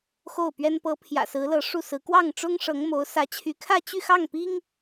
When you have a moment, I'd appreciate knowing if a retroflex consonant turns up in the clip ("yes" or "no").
yes